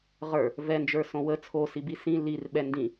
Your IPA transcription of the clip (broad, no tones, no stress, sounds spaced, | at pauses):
ʁ ə˞ | v ɛ n d͡ʒ ə˞ s õ w ə t͡sʰ o s i b i s ĩ l i r ɓ ɛ n d ĩ